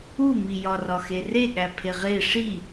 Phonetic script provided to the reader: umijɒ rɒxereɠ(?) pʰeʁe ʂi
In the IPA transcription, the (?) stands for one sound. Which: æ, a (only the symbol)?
æ